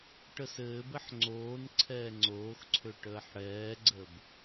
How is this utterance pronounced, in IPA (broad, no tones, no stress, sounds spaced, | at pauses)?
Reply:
ʈ ə s ɘː b ɘ ħ ŋ͡ǀ oː n ǀʰ ɛː ŋ͡ǀ oː x ǀʰ ø ʈ əː ħ ɽ ɛː ɡ͡ǀ ə b